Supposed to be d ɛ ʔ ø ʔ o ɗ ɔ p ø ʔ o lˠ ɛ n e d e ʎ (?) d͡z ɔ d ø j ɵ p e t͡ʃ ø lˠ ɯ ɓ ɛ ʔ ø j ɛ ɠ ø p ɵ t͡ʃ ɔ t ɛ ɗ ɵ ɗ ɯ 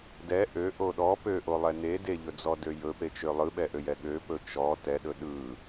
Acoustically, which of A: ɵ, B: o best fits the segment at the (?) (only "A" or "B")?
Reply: A